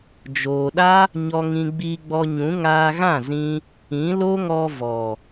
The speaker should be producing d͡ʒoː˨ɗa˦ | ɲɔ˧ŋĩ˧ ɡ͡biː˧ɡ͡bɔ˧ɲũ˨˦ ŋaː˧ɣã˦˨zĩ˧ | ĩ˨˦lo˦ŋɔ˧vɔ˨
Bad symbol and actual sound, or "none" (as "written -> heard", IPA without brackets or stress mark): none